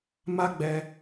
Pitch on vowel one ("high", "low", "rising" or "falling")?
high